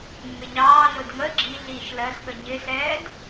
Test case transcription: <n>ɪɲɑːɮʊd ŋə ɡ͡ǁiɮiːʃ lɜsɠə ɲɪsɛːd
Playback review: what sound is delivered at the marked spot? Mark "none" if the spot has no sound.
mː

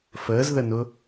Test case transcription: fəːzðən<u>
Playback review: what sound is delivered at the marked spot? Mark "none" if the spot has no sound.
ʊ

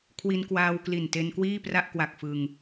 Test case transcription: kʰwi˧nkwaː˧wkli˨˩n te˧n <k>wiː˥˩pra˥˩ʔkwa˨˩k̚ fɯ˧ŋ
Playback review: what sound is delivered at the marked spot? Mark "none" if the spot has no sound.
k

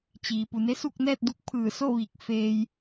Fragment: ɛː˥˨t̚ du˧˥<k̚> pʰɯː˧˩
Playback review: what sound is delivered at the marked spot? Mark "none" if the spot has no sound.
k̚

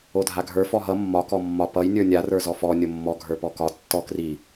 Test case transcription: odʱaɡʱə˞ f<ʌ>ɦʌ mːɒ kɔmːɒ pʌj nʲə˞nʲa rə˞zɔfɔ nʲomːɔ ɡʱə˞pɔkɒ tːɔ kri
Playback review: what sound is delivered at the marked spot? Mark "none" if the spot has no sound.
ɔ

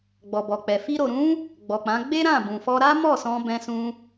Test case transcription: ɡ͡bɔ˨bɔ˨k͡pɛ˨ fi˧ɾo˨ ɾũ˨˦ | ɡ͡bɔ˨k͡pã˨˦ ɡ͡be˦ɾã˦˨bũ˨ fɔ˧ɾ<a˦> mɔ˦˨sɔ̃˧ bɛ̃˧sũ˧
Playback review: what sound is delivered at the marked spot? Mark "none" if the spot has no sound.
a˦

